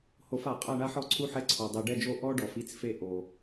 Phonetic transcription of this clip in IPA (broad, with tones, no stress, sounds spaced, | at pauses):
h o˨˩˦ f a˨˩˦ qʼ a˥˨ ɳ a˥ ħ ɔ˥ ǀʰ u˥ ħ ɛ˥ ǀʰ ɔ˨ dˤ i˨ ɖ ɛ˥˨ d͡ʒ o˥˨ ʔ ɔ˥ ɖ ɔ˨˩˦ f i˥ t͡s f e˥ ʔ o˨